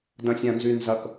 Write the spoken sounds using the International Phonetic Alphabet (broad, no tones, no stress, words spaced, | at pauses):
dɐ̃sʲãnzynzɐk